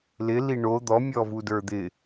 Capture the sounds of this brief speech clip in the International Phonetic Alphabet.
l ɪ l i ɳ o d̪ ɔ mʲ ɔ v u d ə˞ d̪ ɪ

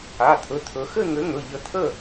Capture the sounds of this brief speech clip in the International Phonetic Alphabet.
a˩˧˩ t̪ʰ ɵ˩˧˩ t̪ʰ ɵ˩˧ x ɘ˥˨ ŋ ɘ˨˥ ŋ ɵ˩˧˩ ʎ ə˧˩ t̪ʰ ə˥˨

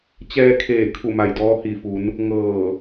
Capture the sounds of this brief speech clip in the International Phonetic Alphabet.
t͡ɕ ɛː˧ kʰ eː˧˩ kʰ u˧˩ m a˧˩ j d ɔː˧ h i˧˩ f u˩˧ n | ŋ ɤː˧˩

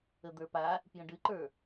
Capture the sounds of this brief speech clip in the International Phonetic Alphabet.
ə d̪ ə˞ p a | p j ə̃ ɖ ɨ ǃ ə˞

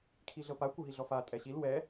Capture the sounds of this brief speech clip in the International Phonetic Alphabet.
kʰ i ɮ ɤ p a kʷ ɯ ɦ i ɮ ɔ f a tʼ ɛ ɕ i l w ɛ

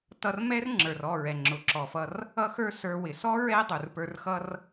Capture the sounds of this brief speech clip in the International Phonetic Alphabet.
t ʌ˧ r m ɛ˦ r ŋ͡ǁ ə˞˨ r ɔ˦˨ ɹ ɛ˨ ŋ͡ǁ ʊ˨ ǁ ɔ˨ f ʌ˧ r | ʌ˦ x ə˞˦ s ə˞˧ w ɪ˨ s ɔ˦ ɹ ɛ˦ dˤ u˨ r p ə˞˧ r x ʌ˦ r

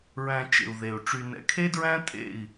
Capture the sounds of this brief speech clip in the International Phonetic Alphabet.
ɹ æ̃˧ t͡ʃ ḛ˨ u̯ ð e˨ u̯ ʈ͡ʂ y˨ n ɛ̰˨ kʰ e˦ d ɹ æ̃˦ tʼ ḛ˦˨ i̯

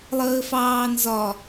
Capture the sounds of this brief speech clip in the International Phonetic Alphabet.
lˠ əː f ɑː n z ɒ

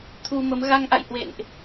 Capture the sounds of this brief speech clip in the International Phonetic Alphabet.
t̪ʰ u˧ m ə˨˦ m ɣ a˧ ŋ ʔ a̰˧˨ j h w ḛ˧˨ n ʔ

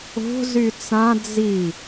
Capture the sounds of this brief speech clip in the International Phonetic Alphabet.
o̤ z y t͡s ã d͡z i

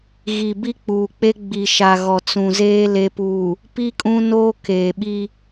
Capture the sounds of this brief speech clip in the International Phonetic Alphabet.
ɣ i˨ b i˦ k͡p uː˨ k͡p e˦ ɡ͡b i˨ ʃ a˨ ɣ ɔ˨ t͡s ũ˨ z eː˦ l e˨ p uː˨ | p i˦ kʼ ũ˦ n oː˦ k eː˨ ɓ i˦

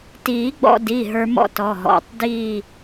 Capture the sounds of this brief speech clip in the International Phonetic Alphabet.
t iː˨˩˦ ɡ͡b ɔ̰˧ d i˩˧˩ ɦ ə˞˧ m ɔ̰˥˧ t ɔ˩˧˩ ɦ ɔ̰˩˧˩ tˤ d iː˥˧

